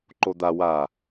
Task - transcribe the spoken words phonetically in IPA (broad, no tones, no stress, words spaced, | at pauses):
ǃod̪a wa